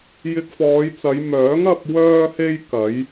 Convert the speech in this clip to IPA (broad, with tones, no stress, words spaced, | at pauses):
jɪ˧k̚fɔː˨˧jt͡sɐ˨˧j mœː˨˥ŋɐ˧p̚ wœː˧he˧j kɐ˨˥j